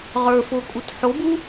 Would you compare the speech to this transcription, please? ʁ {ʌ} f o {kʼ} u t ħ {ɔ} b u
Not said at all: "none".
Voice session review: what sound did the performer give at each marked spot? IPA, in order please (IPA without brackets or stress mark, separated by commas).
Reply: ə˞, kʼ, o